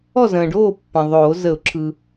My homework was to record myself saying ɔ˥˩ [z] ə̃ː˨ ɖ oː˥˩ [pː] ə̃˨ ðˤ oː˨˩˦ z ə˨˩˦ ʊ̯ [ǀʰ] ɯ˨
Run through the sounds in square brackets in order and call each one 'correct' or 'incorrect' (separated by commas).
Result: correct, correct, incorrect